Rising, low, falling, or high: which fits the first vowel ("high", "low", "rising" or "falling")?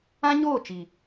high